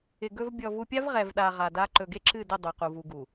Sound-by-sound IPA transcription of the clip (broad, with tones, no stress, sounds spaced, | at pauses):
ɪ˨ ɡ ɵ˨ v bʲ ɔ˨ v u˨ pʲ a˦ v ʁ ɛ˨ v ɗ a˨ ʁ a˨ d a˦ ǃ ɵ˨ ɡ e˦ ǁ ɨ˦˨ d ɪ˦˨ dˤ u˨ q u˨ v u˨ ɡ u˨